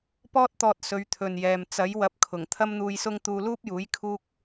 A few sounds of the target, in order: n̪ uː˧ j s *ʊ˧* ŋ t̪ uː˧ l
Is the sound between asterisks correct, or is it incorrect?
incorrect